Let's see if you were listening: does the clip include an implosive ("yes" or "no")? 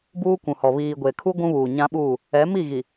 yes